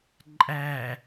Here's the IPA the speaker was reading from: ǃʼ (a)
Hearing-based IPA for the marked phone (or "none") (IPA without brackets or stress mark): æ